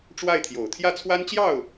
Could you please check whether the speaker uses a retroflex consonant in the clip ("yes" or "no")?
yes